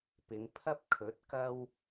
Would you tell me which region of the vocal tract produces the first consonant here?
lips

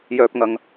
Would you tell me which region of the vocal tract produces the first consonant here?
palate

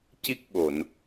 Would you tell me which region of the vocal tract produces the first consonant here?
palate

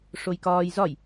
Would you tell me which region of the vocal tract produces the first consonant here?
retroflex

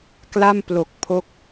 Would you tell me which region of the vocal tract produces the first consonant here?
velum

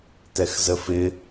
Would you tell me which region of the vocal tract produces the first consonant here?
tongue tip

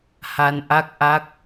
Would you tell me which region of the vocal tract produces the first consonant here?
throat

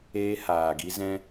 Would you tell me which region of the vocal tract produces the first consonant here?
throat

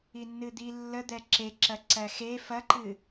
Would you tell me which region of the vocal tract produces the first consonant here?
tongue tip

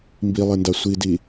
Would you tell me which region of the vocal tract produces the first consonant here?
lips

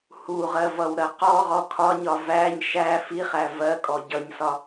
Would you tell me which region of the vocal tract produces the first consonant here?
throat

